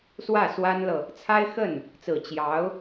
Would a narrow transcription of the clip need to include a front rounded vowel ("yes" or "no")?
no